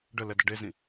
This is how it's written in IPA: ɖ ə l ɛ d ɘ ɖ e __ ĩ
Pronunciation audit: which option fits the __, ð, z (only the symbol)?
z